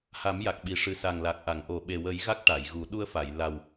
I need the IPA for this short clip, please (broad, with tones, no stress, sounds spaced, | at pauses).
h a˨˩˦ m j a˨˩ k̚ ɓ i˨˩ ʂ ɨ˨˩ s a˨˩ ŋ l a˨˩ k̚ ʔ a˨˩˨ ŋ ʔ o˨˩ ɓ e˨˩ w ə˨˩˦ j ɣ a˦˥ k̚ ʈ a˨˩˨ j ɣ u˨˩˦ ɗ u˧ ə̯ f a˨˩˨ j l a˨˩ w